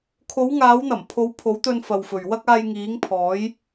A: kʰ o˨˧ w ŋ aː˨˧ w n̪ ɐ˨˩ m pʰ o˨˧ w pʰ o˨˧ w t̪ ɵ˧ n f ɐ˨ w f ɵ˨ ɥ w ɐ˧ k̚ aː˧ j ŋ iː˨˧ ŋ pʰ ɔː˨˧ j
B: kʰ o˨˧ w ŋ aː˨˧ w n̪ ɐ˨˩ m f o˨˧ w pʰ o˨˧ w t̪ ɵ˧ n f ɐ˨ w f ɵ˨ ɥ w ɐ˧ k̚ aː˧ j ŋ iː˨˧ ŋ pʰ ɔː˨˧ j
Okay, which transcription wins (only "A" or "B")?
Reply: A